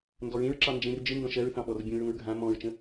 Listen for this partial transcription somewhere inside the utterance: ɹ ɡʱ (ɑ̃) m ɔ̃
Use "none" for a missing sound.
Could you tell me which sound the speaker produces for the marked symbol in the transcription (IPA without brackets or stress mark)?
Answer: ã